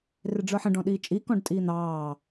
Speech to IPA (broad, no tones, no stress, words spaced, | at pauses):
rɪɖ͡ʐə˞ħə̃ ɖɔ̃ɗiːt͡ʃʼi kɔ̃ɖtʼiːn̪ɑː